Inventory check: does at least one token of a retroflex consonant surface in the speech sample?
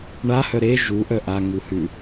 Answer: yes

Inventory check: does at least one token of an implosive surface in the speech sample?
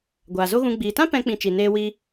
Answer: no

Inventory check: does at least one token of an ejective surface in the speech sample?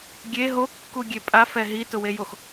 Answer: yes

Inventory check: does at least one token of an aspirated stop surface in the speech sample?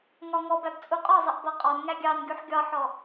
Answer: no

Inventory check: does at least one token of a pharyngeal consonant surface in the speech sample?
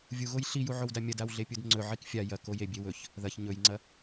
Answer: yes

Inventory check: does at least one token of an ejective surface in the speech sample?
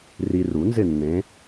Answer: no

